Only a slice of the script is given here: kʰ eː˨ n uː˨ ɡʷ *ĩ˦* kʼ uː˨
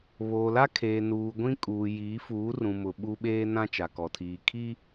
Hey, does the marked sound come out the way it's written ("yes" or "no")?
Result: yes